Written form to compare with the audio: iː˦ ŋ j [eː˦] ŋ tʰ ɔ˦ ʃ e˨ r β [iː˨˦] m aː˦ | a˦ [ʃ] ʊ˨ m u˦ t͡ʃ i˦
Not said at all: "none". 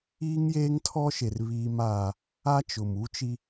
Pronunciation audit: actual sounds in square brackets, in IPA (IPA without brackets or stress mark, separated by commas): eː˦, iː˦, t͡ʃ